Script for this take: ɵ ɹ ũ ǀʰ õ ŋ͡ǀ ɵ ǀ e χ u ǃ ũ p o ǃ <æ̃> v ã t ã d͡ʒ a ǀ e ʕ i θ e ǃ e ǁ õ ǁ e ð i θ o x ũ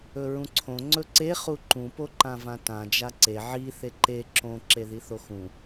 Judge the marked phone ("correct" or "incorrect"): incorrect